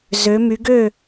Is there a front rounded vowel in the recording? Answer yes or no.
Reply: yes